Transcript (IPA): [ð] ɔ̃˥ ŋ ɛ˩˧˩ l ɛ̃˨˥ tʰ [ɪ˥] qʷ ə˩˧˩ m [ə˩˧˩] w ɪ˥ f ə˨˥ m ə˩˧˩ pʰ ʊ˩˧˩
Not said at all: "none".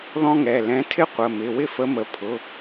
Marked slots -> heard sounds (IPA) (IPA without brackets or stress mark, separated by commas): ð, ɪ˥, ɪ˩˧˩